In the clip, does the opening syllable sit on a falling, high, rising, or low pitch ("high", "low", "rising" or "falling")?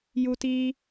high